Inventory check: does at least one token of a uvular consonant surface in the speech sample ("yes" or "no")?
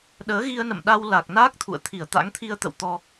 no